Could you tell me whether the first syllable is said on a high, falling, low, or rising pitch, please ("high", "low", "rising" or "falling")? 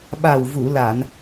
low